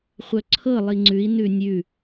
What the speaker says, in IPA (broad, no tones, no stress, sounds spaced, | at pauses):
χʷ œ ǀʰ ɤ lˠ i ŋ͡ǀ ʉ i̯ n ʉ nʲ ʉ